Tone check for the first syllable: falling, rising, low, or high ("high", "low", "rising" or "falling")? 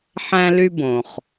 high